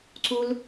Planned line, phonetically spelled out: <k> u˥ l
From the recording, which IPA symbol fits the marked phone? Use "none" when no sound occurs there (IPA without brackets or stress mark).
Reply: ǀ